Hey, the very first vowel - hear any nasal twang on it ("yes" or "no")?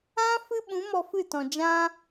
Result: yes